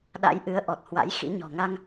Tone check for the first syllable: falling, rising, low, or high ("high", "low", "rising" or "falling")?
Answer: rising